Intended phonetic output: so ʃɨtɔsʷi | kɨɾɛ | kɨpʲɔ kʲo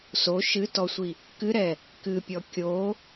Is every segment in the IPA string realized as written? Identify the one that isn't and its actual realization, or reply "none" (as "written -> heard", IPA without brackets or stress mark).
none